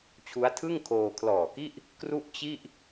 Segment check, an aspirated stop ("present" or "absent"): present